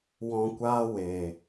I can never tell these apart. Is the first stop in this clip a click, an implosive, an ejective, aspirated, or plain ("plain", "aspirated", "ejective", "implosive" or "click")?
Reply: plain